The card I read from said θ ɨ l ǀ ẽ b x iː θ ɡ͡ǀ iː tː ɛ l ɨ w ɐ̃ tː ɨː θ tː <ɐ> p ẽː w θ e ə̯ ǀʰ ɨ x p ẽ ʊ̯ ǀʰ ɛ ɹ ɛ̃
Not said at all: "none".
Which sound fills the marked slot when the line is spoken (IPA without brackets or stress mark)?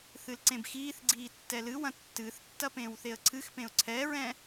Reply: ɐ